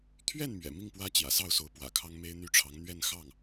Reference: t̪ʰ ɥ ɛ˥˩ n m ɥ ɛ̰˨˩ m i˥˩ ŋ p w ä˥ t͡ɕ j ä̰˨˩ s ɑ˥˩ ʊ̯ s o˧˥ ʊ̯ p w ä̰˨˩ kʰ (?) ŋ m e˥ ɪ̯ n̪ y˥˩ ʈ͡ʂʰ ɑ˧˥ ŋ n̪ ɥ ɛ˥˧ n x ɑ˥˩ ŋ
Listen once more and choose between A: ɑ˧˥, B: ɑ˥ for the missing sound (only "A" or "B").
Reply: B